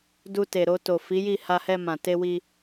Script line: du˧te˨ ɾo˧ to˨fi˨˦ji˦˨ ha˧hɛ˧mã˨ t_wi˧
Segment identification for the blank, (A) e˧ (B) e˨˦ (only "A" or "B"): A